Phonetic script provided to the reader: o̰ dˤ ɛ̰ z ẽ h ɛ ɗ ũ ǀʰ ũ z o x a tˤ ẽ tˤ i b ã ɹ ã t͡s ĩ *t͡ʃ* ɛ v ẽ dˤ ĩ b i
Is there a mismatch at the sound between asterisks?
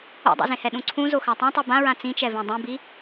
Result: no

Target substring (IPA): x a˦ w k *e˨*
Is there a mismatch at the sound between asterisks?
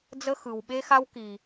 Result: yes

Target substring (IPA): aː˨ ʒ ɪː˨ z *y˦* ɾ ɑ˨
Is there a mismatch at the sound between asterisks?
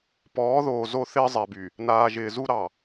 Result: yes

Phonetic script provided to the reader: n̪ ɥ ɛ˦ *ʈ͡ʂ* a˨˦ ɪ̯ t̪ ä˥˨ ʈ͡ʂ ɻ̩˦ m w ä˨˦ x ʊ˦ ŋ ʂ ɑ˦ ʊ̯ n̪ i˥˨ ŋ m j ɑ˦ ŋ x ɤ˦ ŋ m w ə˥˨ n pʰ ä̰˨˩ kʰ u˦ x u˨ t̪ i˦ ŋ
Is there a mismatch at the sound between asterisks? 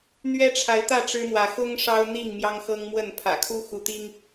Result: yes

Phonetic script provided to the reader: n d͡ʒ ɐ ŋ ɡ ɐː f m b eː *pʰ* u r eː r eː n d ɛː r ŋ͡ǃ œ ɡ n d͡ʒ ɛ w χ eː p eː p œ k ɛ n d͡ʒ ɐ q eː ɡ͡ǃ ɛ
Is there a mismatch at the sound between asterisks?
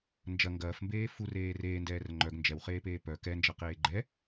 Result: yes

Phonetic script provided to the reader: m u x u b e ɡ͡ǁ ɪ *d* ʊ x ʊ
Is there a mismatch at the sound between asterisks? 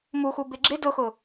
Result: no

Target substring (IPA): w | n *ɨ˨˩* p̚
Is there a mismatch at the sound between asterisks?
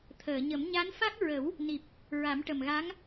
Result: yes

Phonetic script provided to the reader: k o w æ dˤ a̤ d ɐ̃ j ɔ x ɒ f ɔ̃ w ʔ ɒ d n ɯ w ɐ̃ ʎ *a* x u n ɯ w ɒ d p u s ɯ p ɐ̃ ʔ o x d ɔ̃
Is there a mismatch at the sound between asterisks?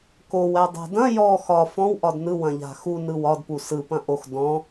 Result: yes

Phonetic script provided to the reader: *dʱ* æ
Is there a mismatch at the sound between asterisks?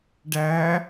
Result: yes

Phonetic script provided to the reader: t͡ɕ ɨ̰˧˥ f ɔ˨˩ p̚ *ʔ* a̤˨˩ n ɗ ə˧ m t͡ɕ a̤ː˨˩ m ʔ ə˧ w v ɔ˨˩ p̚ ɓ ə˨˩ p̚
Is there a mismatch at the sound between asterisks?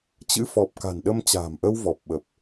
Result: yes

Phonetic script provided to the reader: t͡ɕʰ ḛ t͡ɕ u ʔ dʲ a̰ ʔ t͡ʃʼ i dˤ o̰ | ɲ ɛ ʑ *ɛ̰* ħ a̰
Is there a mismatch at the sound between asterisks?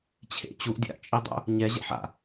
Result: no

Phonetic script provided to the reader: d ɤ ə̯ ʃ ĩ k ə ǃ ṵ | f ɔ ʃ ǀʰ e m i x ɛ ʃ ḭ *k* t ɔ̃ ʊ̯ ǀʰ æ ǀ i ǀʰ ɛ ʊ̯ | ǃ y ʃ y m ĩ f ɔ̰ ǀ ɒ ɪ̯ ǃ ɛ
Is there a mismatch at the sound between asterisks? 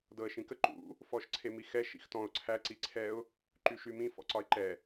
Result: yes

